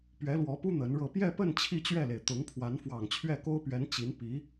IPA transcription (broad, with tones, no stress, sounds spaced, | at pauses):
p ɥ ɛ˧˥ l w ɔ˧˥ p u˥ n̪ ə˧˥ n ɻ ɤ˥˧ p j ɛ˥˧ p ə˥˧ n t͡ɕʰ i˥˧ t͡ɕ ɥ ɛ˥˩ l e˩ ɪ̯ t̪ ʊ˧˥ ŋ pʰ w a˧˥ n f w ɑ˨˩ ŋ t͡ɕʰ ɥ ɛ˥˩ k o˥ ʊ̯ p ɥ ɛ˧˥ n t͡ɕ i˧˥ n p i˧˥